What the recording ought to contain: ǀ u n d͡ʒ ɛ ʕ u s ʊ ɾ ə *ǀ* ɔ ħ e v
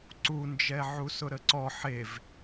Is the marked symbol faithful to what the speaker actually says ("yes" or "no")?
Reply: yes